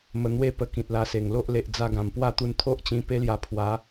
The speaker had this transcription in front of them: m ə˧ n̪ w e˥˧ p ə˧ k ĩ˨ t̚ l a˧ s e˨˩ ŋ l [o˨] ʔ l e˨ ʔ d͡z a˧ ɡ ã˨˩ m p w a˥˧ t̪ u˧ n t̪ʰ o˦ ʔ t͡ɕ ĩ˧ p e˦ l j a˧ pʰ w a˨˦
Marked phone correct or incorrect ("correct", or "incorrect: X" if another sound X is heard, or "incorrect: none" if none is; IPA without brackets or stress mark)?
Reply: incorrect: o˦